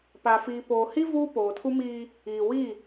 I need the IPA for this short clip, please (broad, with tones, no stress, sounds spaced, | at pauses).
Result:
p a˨ f iː˨ p oː˨ h i˦ v uː˦ p oː˨ tʰ u˦ m iː˦ | iː˨ w i˦˨